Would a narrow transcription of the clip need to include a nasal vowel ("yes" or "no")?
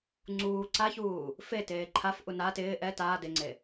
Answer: no